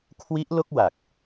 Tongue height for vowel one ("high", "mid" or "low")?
high